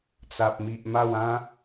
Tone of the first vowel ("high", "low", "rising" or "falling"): low